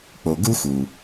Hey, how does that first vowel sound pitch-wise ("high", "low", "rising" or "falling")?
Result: low